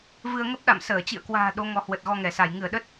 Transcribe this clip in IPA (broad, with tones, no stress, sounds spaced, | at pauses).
v ɨ˧ ə̯ ŋ ə˦˥ p̚ ɗ a̰˧˨ m s əː˧˩ t͡ɕ ḭ˧˨ ə̯ k w a̤ː˨˩ ɗ o˨˦ ŋ ɔ˨˦ h w ə˨˩ t̚ ɣ ɔ˧ ŋ ɛ˧˩ s a˧˩ j ŋ ɨ˧˩ ə̯ ɗ ə˦˥ t̚